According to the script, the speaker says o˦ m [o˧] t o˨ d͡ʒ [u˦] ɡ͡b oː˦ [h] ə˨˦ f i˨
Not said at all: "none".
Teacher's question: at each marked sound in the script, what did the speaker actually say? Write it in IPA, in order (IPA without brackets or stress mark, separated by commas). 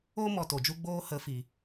ɔ˧, u˦, h